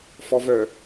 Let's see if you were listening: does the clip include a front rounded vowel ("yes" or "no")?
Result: yes